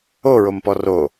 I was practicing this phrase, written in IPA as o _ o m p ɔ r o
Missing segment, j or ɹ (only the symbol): ɹ